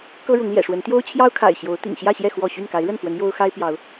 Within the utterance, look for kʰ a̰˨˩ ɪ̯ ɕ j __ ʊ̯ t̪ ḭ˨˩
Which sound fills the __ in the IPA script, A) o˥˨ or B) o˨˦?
B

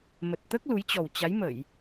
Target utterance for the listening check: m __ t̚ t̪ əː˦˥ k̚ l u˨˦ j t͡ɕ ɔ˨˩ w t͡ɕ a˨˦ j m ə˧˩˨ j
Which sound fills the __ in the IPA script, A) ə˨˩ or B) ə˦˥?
A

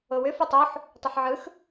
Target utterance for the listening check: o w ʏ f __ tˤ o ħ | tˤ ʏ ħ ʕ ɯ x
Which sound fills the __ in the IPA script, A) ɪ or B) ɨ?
B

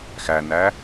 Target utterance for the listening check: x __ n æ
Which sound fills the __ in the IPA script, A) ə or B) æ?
B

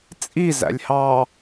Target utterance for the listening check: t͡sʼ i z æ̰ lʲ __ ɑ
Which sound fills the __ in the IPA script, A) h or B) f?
A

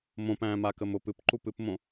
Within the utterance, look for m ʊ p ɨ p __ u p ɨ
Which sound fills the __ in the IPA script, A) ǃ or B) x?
A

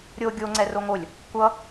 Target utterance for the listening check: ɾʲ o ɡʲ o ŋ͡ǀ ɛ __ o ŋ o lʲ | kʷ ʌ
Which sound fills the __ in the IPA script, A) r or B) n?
A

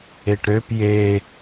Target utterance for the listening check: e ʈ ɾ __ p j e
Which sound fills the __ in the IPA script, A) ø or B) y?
A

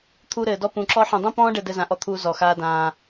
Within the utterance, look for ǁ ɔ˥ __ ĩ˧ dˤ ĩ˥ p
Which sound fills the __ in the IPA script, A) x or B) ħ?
B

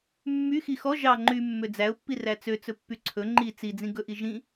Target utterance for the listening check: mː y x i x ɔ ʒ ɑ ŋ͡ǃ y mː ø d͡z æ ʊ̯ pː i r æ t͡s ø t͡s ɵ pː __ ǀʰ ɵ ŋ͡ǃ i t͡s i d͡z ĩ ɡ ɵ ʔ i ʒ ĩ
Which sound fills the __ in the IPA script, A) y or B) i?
A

